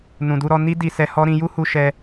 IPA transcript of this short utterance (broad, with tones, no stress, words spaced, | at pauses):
nũ˨du˧ɾɔ˧ ni˦ di˧sɛ˧hɔ˦ ɾĩ˧ju˦hu˧ ʃɛ˧